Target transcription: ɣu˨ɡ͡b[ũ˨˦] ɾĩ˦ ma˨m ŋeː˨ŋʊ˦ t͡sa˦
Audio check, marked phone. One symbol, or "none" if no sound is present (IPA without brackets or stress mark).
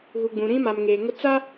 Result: ũ˨